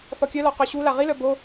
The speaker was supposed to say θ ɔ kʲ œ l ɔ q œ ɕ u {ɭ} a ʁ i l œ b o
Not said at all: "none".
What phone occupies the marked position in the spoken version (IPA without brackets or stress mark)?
l